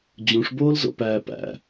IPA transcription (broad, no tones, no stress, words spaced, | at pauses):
d͡ʑũʂboːlzo̰pæː pæ̰